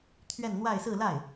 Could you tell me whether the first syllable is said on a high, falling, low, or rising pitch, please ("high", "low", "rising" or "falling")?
falling